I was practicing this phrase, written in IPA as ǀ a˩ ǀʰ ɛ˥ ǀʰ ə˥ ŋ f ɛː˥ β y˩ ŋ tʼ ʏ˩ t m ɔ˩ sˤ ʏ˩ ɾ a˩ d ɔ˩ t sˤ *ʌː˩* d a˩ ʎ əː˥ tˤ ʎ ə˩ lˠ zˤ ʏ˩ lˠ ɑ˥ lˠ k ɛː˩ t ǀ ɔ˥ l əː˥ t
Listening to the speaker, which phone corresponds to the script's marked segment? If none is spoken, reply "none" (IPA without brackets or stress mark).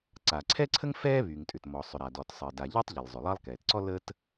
əː˩